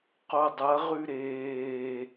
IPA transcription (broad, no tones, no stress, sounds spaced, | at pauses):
q o dˤ ɐ ʁ ʉ ɾ eː